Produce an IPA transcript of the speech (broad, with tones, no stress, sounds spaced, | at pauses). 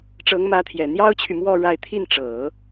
ʈ͡ʂ ɤ˧˥ ŋ m ä˧˥ t̪ʰ j ɛ˨˩ n̪ j ɑ˥ ʊ̯ t͡ɕʰ y˨ m w ɔ˥˧ ɻ a˥˧ ɪ̯ t̪ʰ i˥˩ n ʈ͡ʂ ɤ˨˩˦